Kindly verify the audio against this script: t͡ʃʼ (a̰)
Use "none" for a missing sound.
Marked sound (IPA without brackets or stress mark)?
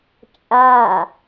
a